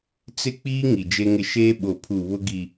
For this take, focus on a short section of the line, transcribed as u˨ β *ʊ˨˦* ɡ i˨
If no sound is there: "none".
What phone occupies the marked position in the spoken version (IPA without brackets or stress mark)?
ʊ˦